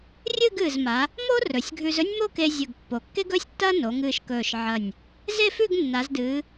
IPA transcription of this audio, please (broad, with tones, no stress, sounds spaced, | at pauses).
rʲ ɨ˥˧ ɡ ɨː˧˩ z m a˩˧ | m o˥ r ɵ˩˧ sʲ ɡʱ ʉ˧ z ɵ˥ nʲ m o˥˧ k e˧ zʲ ɵ˧˩ ɡ pː o˩˧ kː e˥ ɡ ɵː˥ sʲ tː ɐː˥ n o˩˧ ŋ ɨː˧˩ ʃ k ɵː˧˩ ʃ ʕ ɐ˧˩ nʲ | z e˥˧ f ʉ˥˧ ɡ nː a˩˧ z d ɨː˩˧